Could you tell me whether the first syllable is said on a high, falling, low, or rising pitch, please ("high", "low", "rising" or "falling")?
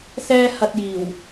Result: high